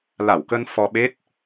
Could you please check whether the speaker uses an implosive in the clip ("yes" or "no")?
yes